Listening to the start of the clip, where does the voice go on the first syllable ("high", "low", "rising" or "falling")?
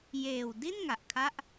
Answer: low